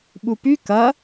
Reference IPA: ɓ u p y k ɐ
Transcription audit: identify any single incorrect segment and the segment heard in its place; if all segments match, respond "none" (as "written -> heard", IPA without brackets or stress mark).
none